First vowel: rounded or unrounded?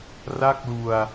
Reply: unrounded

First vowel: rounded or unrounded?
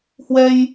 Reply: unrounded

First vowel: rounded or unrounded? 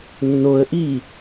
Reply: rounded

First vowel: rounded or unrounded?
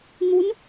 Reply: rounded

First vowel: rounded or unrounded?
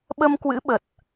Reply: unrounded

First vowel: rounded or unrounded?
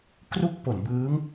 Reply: rounded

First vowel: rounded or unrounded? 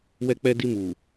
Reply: unrounded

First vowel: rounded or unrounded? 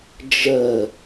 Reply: unrounded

